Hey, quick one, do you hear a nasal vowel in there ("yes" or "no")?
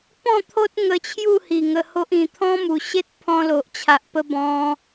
yes